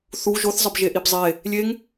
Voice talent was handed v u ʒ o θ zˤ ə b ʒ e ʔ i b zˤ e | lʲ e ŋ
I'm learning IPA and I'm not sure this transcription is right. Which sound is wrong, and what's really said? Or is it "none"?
v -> θ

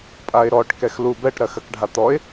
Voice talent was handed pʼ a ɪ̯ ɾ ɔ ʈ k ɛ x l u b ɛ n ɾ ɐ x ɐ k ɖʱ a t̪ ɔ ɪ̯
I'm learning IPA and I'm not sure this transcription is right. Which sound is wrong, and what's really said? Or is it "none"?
n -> ʈ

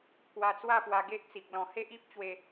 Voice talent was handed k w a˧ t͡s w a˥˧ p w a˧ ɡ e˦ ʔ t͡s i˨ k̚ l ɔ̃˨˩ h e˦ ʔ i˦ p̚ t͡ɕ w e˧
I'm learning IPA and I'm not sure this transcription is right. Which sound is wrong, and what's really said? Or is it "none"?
none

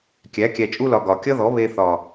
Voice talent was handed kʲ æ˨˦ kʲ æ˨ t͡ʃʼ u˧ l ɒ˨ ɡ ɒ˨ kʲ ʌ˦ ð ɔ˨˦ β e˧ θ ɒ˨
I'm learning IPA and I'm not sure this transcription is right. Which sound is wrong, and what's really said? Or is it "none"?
none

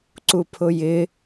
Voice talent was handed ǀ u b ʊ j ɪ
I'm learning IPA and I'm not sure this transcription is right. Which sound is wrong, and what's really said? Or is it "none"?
b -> pʰ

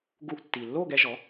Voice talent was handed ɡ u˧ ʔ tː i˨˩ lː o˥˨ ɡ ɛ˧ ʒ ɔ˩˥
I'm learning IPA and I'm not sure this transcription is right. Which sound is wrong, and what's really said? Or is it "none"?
none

